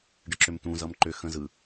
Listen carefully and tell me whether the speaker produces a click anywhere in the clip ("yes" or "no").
yes